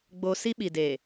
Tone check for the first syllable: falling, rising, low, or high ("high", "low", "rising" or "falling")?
high